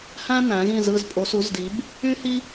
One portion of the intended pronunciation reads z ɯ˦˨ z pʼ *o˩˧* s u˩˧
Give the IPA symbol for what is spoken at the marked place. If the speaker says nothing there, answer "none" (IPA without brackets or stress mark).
o˩˧